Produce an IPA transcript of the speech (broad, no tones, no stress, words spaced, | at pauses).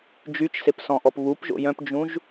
d͡ʒyt͡ʃsep sɔ̃ʔɔpβupʒo̰ jœ̃pd͡ʒũʒ